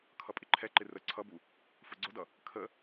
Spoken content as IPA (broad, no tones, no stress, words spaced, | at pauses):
kʰʌpʼɪǃʰɛǃɪ rə ǀʰʌbu | fʊɡ͡ǀʊdʌ | kʰə